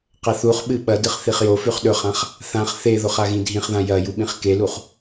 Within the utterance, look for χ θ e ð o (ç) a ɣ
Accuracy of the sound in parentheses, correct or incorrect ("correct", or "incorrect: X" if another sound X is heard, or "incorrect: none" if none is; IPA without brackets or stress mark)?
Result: incorrect: χ